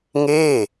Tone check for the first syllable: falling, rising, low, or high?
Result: falling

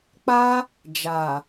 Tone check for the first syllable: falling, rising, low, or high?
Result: high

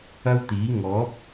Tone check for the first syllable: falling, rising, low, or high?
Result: high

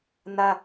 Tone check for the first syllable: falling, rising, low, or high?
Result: high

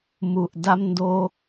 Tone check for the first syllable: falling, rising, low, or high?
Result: low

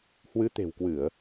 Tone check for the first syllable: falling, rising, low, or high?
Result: rising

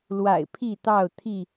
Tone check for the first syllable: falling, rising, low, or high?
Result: low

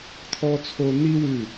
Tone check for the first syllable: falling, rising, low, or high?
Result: high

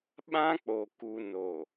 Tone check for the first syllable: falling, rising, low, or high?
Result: high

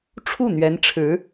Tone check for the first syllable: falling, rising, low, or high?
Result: falling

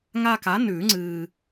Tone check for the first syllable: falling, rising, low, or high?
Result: high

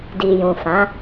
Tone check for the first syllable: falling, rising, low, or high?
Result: low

